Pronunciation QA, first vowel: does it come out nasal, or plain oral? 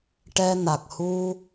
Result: oral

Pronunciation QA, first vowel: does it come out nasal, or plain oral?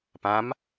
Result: nasal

